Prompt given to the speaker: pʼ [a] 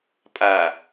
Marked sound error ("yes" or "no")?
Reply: no